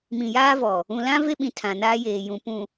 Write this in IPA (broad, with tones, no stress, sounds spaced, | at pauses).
m ĩ˨ j aː˦ v ɔ˨ | ũ˨ l ã˦ v e˦ ɓ ĩ˨ tʰ ã˨ n aː˦ j eː˨ j ũ˨ p ũ˨